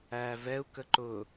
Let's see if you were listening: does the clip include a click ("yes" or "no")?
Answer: yes